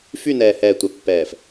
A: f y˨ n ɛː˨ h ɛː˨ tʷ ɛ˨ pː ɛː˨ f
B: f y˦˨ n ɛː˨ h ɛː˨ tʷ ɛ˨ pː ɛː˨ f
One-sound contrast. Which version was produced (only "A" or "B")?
B